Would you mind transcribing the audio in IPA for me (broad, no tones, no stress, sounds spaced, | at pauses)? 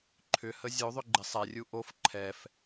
ǃʰ ʏ h ə zʲ o ðˤ ʏ ɡ͡ǃ ɪ sˤ ɛ rʲ u ʔ o f ǃʰ ɛ f